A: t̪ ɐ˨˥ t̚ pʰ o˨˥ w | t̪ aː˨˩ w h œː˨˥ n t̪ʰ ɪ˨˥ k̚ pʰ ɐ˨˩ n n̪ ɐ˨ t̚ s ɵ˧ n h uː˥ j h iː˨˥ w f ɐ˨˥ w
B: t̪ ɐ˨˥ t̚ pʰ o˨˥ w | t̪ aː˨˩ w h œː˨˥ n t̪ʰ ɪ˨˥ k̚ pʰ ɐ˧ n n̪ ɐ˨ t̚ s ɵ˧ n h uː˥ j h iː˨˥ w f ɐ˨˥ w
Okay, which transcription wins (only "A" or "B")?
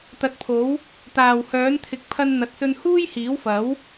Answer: B